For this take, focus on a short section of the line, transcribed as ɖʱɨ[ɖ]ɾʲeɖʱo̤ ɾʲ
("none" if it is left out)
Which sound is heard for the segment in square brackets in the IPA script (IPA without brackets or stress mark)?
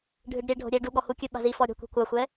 ɖ